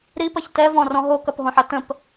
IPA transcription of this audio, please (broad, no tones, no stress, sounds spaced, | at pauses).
ɾ i p ɐ ç t ɛ v ɔ̃ r ɔ̃ ɦ o k ɐ p ɦ õ ħ ɐ t ə̃ p